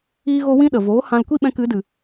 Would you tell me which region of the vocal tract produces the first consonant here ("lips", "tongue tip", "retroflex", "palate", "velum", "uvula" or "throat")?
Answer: velum